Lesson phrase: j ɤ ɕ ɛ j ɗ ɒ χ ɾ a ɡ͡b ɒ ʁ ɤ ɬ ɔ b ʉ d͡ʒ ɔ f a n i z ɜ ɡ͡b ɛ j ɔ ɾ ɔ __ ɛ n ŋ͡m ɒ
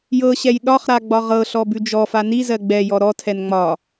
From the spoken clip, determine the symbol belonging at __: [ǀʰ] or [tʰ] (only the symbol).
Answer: tʰ